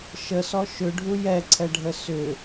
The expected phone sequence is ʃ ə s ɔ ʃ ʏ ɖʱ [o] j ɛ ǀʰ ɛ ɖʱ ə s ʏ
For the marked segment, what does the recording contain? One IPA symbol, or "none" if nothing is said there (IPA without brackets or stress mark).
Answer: u